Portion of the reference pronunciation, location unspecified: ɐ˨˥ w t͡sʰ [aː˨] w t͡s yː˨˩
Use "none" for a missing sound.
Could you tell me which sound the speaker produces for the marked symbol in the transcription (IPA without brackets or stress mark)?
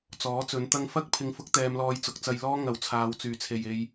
aː˨